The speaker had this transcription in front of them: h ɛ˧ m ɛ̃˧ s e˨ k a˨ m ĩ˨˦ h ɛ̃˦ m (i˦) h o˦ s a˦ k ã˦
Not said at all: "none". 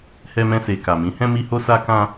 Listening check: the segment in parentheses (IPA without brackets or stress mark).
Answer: i˦